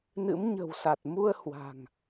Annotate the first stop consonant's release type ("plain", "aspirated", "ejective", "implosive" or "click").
plain